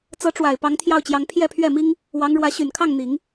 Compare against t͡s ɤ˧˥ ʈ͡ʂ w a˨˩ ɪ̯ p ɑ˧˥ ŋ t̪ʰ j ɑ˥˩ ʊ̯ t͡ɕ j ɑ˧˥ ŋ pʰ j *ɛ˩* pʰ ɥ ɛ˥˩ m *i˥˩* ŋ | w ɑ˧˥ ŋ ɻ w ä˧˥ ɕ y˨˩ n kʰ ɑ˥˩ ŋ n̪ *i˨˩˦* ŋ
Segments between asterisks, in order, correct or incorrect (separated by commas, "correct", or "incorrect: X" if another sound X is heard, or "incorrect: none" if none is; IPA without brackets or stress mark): incorrect: ɛ˥˧, incorrect: i˥, correct